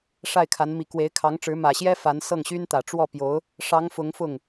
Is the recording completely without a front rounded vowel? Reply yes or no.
no